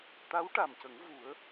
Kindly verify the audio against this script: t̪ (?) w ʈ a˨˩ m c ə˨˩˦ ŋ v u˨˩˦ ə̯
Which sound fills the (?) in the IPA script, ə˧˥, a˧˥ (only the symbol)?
a˧˥